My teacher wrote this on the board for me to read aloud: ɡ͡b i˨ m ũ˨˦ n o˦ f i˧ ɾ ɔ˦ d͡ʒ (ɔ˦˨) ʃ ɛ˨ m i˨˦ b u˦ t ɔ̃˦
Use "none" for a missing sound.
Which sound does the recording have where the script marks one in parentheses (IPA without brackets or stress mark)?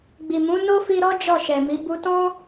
ɔ˦˨